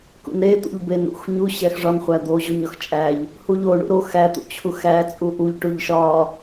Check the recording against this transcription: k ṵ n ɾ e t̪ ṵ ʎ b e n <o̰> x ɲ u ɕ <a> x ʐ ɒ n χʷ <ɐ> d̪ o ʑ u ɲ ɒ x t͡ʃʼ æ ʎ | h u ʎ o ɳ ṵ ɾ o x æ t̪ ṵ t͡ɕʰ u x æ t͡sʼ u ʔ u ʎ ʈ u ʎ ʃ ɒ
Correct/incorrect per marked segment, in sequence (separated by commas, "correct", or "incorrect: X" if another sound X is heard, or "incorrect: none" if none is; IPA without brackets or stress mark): incorrect: ṵ, incorrect: æ, incorrect: æ